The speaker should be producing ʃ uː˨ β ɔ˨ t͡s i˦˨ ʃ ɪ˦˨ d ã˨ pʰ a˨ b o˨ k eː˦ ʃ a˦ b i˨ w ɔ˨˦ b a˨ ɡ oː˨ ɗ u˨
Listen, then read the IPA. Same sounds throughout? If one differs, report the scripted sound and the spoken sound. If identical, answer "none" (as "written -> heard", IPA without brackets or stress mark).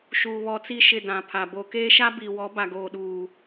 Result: u˨ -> uː˨